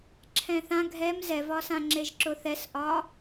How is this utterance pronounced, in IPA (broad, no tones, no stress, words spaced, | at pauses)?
ǁʰɛ̃θã ɡʱɛm zɛvɒsãŋ͡ǁeʒ ǁʊθɛsʔɒ